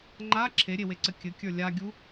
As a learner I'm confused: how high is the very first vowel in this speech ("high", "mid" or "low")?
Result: low